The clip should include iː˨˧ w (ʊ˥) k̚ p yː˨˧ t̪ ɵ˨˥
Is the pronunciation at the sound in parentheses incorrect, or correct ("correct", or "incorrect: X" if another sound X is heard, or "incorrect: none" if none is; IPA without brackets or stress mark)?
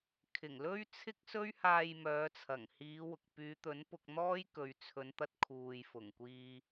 incorrect: ʊ˨